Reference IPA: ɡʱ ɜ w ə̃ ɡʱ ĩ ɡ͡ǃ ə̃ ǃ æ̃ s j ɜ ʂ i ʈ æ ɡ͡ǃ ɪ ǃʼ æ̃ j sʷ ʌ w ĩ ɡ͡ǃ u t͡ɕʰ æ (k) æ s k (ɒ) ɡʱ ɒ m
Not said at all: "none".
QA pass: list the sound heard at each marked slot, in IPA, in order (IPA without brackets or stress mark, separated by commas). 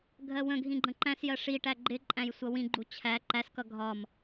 ǃ, ʌ